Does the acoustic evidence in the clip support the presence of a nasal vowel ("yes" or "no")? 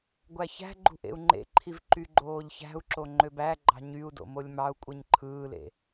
no